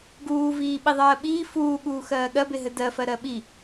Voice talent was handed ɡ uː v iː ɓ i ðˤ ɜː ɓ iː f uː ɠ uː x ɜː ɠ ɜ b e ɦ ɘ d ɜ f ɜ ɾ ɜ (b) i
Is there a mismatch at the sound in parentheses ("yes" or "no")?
yes